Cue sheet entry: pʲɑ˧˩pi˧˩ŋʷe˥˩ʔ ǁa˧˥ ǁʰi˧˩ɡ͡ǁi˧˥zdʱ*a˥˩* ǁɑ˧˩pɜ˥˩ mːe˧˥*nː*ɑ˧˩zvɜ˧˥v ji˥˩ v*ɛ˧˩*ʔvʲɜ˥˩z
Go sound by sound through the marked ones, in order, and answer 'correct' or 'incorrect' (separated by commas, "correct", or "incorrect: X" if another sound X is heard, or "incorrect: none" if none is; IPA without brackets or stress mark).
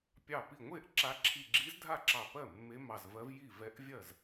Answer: correct, incorrect: m, incorrect: ɛ˧˥